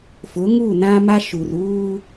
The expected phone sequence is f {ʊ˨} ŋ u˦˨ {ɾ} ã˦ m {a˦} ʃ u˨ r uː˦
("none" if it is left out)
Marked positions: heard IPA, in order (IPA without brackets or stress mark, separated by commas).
ʊ˨˦, n, a˦